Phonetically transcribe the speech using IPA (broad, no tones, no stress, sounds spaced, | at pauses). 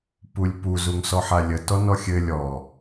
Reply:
p u lʲ p u z u ŋ s ɔ ħ a lʲ ə t ɔ n ɔ xʲ ɘ lʲ ɔ